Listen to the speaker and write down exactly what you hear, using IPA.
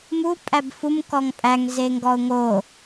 mu pʼæbfum kɔŋpʼæŋ zeŋɡɔʊ̯ŋo

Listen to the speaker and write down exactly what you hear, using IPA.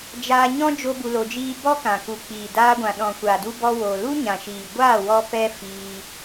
d͡ʒaː˧ɲɔ̃˦ d͡ʒo˦bu˧lo˧d͡ʒiː˦ bɔ˦kã˨ ku˨k͡piː˨daː˧ɡʷã˨ ɗɔ̃˨kʷa˨du˧ bɔ˧wo˨ lu˦ɲã˨ʃiː˨ ɡʷaː˦˨ wɔ˦pɛ˦ fiː˧

